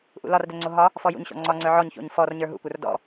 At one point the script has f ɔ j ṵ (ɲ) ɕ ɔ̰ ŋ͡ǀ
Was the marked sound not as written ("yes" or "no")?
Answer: no